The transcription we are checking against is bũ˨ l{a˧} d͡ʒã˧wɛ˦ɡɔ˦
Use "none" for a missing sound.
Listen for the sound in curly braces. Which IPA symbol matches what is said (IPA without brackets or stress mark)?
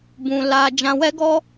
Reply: a˧